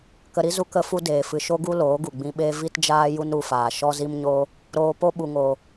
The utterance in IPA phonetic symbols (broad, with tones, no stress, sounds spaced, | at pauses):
k ə˧ ɾ i˦ z u˦ k ə˦ f u˦ d eː˨ f ɨ˨ ʃ o˦ ɡ u˦ l oː˨˦ ɡ u˨ ɡ͡b ĩ˧ ɓ eː˦ v i˦ t d͡ʒ aː˦ j u˦ n ɾ u˧ f aː˨ ʃ ɔ˦ z i˦ m ɲ oː˦ | ɾ oː˧ p o˦ ɓ u˨ ŋ oː˨